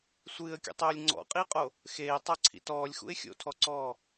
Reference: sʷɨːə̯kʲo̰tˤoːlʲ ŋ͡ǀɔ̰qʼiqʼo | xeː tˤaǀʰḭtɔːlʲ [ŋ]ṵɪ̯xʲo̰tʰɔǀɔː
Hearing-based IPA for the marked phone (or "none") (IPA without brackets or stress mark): x